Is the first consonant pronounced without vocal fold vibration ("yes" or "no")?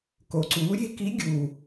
yes